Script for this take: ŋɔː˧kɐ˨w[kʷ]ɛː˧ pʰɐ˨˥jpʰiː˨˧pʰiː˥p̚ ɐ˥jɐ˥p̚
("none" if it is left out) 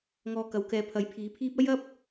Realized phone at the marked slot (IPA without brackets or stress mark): k